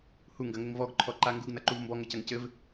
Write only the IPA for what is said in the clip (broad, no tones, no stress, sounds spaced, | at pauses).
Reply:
h u ŋ ɡ ɐ ŋ ɘ ŋ v ɔ ɡ ǃʰ ɔ ǃ a ŋ ɡ u ɡ n ɐ ǃ u v m b ɔ ŋ ɘ c ɐ ŋ c ɘ v